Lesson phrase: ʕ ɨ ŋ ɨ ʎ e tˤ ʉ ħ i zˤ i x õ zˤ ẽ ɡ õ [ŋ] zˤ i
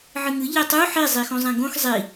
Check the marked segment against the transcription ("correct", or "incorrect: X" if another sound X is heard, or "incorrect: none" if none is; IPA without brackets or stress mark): incorrect: x